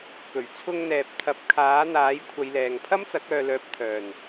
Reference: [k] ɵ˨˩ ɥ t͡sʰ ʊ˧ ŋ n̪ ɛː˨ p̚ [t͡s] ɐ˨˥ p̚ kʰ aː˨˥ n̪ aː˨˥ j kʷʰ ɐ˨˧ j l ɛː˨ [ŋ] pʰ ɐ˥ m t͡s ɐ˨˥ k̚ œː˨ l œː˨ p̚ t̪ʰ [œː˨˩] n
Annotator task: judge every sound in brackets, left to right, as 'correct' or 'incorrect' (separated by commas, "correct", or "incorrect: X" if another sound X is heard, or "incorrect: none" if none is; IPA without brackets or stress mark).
correct, incorrect: t̪ʰ, correct, correct